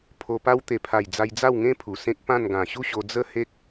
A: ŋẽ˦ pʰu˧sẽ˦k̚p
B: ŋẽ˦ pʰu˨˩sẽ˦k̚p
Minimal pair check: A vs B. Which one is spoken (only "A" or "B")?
B